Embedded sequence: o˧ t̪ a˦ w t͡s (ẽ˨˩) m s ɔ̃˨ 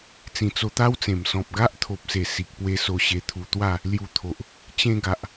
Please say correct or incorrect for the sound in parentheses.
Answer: correct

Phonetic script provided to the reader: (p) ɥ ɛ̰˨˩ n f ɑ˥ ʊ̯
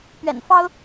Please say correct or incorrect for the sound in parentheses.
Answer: correct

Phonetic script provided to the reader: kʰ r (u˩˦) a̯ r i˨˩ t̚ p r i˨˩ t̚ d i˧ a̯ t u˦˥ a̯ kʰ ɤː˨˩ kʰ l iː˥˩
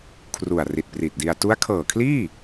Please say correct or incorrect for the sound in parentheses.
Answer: incorrect: u˨˩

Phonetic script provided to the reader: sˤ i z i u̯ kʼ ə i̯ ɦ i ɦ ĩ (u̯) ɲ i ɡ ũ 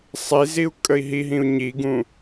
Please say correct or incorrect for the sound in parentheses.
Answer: correct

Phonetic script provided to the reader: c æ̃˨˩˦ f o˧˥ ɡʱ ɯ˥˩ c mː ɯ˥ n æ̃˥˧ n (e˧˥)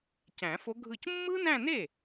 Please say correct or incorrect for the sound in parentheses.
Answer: incorrect: e˥˩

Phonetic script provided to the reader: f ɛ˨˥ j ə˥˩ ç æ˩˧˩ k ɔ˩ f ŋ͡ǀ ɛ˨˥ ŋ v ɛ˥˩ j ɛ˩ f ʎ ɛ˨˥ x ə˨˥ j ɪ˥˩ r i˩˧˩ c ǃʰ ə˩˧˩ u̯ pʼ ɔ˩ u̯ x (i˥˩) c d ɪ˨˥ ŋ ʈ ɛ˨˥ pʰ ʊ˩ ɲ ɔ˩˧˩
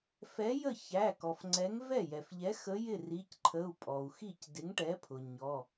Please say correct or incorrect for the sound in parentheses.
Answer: correct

